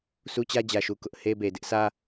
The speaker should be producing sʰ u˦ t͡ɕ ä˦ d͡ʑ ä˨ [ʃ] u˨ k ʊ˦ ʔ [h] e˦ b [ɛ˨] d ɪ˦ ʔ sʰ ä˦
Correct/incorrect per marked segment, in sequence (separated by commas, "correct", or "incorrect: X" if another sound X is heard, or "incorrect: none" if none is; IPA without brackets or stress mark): correct, correct, incorrect: e˨